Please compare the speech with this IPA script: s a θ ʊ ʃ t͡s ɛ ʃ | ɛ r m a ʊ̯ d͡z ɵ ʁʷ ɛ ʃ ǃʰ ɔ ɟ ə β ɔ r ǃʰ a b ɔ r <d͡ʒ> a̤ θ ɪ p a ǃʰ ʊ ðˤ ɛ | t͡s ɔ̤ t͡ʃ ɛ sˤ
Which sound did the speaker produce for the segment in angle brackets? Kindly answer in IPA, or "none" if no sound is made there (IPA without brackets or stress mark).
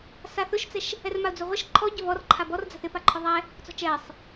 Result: d͡z